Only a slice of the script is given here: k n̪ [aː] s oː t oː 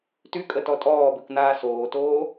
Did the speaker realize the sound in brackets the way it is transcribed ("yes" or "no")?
yes